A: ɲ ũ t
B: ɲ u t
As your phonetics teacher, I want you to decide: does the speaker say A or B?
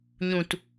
A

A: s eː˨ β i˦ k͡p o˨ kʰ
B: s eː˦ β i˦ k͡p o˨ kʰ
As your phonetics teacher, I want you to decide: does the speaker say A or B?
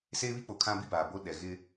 B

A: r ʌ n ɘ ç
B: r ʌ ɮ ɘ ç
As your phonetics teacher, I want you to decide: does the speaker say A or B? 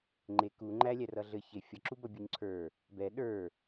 B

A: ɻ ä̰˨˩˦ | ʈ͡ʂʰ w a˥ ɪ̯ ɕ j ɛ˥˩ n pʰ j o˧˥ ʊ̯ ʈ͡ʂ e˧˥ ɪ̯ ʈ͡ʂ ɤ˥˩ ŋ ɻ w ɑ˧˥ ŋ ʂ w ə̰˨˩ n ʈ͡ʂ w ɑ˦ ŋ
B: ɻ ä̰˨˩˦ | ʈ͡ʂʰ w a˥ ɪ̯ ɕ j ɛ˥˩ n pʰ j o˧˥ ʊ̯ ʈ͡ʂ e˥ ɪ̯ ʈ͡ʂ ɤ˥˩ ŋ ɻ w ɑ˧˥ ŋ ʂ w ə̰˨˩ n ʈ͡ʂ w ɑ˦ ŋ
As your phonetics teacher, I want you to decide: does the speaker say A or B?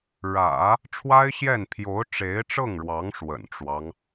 A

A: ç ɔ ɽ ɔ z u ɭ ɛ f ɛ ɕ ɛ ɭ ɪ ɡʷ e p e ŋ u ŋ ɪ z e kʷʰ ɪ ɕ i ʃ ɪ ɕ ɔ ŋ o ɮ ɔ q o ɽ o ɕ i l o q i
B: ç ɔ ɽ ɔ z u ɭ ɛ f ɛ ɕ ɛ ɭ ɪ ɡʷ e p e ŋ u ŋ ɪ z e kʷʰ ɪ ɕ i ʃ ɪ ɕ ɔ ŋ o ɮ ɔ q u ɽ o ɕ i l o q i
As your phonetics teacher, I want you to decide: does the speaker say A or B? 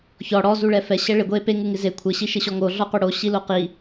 A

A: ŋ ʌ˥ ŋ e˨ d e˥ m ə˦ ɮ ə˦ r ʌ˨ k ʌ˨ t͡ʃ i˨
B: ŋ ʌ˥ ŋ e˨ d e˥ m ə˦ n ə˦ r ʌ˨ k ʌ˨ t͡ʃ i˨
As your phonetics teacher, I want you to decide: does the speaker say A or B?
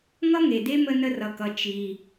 B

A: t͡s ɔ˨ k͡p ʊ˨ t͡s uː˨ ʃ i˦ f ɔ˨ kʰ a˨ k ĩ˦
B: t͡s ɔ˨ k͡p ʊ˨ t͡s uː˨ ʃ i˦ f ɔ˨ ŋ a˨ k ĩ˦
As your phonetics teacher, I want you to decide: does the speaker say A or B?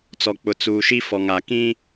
B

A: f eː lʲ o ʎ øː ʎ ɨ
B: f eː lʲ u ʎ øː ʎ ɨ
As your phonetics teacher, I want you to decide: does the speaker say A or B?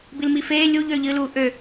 B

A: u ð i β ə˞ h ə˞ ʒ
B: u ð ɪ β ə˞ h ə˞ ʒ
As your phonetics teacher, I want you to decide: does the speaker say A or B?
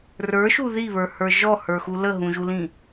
A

